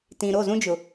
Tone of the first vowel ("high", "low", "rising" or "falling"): low